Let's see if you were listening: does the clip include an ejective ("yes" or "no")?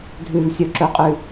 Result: yes